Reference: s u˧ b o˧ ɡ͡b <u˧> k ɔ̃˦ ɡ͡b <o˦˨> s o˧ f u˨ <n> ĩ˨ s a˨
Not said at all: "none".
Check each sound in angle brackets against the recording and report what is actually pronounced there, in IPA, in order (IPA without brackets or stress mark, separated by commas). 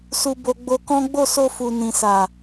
o˧, o˦˨, n